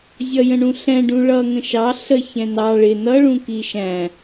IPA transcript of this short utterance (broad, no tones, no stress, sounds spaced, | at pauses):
zʲ ʌ j ə̃ ɳ ũ ɬ ɛ̃ ɖ ũ ɭ ʌ ŋ ə̃ ʃ ɑ ɬ ə ç ɛ̃ n ɑ ɭ ɪ n ʌ ɭ ũ k i ʃ æ̃